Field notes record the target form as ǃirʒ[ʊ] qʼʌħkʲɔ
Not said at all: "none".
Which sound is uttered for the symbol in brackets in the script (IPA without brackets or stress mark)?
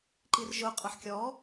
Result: ʊ